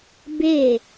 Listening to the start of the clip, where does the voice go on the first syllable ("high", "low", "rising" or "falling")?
falling